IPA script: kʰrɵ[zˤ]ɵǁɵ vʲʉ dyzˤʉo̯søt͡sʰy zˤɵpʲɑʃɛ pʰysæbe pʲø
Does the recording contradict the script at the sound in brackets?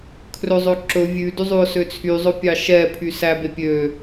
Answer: no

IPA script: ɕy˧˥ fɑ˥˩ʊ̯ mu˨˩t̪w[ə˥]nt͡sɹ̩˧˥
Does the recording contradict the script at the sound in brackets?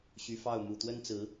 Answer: no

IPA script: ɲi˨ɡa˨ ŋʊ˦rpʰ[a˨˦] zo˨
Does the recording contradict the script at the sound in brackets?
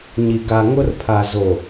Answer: yes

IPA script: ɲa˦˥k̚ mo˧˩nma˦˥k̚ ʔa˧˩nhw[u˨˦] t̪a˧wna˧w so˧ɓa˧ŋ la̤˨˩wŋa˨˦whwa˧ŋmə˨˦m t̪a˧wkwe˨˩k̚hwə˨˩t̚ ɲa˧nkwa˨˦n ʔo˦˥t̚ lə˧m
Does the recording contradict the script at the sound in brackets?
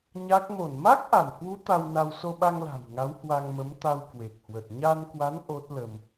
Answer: no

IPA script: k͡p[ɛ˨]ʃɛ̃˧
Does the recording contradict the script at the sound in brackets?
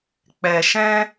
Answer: no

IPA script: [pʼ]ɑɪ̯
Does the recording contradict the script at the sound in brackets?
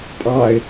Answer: no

